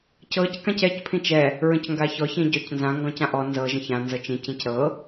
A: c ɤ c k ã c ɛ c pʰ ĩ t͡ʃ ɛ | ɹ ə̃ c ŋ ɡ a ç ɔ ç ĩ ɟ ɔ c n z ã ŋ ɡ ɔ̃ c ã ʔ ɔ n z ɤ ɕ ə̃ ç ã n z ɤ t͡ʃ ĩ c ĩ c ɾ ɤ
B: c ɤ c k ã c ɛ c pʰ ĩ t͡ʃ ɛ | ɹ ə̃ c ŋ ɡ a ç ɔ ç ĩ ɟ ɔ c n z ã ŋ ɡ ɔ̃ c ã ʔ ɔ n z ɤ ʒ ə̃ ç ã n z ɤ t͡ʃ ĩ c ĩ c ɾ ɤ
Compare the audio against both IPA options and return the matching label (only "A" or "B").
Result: B